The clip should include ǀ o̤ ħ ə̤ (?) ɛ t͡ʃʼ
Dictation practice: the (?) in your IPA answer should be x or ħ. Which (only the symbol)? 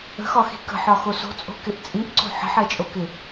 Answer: ħ